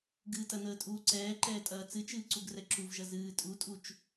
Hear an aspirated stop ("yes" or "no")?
no